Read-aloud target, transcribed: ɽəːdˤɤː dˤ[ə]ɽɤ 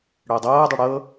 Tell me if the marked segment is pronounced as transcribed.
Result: yes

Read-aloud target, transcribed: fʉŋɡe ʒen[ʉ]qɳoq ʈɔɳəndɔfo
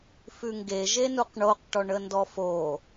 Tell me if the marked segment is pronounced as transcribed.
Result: no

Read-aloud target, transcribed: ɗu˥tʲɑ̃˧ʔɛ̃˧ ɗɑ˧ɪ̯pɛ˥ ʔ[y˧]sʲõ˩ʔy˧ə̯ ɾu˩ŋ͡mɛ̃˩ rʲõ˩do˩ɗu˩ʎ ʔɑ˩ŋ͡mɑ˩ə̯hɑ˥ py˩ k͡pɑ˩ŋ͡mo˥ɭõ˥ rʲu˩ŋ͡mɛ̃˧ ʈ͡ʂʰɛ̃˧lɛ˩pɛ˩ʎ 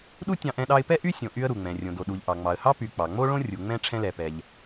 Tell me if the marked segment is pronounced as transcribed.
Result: no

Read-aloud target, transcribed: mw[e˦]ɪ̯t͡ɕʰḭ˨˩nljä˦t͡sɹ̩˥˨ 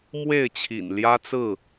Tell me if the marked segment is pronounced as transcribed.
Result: no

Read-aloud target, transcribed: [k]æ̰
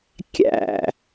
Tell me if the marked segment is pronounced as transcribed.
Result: no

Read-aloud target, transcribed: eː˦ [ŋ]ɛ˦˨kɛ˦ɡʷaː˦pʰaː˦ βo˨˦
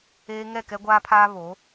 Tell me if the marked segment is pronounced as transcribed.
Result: yes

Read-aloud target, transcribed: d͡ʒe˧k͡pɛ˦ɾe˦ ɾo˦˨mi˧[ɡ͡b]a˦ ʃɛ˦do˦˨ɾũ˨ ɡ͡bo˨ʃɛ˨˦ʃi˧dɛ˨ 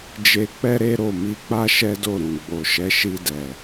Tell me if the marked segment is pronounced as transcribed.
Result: no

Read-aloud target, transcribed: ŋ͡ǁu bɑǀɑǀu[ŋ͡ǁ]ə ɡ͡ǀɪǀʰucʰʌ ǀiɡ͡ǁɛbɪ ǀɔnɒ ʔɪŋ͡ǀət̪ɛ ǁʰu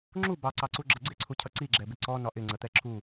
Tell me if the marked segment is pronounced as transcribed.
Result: no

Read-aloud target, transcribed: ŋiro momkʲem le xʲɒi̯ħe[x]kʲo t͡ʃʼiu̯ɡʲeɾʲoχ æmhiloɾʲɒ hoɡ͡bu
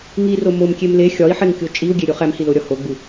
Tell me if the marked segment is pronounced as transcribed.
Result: no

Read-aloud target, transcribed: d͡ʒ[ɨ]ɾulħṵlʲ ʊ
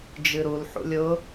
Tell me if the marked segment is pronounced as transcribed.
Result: yes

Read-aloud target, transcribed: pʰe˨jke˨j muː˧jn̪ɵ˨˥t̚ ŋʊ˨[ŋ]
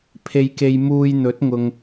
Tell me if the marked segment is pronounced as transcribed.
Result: yes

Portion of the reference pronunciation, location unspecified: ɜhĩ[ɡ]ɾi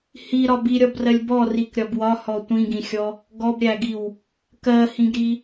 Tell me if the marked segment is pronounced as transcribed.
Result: yes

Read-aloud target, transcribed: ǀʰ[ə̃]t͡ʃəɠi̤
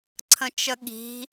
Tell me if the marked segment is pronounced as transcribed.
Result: yes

